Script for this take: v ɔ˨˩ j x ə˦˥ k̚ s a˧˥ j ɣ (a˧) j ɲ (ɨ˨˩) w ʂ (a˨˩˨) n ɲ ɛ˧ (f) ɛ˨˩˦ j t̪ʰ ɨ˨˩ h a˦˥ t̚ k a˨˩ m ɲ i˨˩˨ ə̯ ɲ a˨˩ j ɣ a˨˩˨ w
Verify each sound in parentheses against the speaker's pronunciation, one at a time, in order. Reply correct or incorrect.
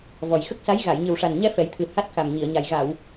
incorrect: a˨˩˨, correct, incorrect: a˨˩, correct

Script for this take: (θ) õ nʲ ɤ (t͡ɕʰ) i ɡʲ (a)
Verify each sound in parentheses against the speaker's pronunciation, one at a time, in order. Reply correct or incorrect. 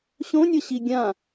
incorrect: ɕ, incorrect: ɕ, incorrect: ã

